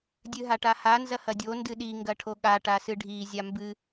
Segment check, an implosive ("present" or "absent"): present